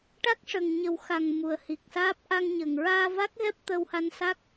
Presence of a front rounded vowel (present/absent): absent